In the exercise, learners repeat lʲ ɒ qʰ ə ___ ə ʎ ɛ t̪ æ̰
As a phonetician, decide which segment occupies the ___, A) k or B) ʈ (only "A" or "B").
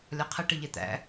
B